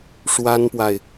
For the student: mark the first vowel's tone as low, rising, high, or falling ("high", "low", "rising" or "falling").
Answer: high